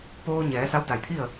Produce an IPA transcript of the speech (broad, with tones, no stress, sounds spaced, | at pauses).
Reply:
p oː˧ ɲ ɛː˩˧ s a˧˥ w d a˧˩ j t̪ʰ i˥˨ ə̯